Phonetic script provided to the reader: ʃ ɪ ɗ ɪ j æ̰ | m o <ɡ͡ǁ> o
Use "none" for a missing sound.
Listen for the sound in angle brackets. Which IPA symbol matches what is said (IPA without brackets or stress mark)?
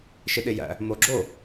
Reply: ɡ͡ǁ